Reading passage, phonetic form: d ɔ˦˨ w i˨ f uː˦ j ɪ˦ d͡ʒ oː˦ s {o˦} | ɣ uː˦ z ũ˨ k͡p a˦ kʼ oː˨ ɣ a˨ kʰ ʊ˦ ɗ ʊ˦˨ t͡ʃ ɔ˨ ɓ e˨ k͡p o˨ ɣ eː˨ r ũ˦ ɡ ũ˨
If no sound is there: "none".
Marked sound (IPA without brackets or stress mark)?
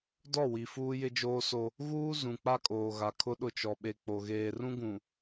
o˦